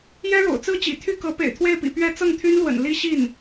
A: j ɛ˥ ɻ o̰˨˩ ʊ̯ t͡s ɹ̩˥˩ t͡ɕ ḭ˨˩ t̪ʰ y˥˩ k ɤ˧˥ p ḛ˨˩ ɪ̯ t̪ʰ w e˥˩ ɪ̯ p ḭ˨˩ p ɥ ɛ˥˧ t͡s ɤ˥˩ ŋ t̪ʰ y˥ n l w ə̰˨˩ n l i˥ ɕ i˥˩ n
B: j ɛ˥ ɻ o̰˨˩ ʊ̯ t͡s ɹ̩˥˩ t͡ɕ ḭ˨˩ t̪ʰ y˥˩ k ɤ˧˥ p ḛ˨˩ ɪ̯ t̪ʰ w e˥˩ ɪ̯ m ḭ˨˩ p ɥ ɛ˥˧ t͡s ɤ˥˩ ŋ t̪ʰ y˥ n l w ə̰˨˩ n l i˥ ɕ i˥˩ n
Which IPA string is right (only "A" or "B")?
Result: A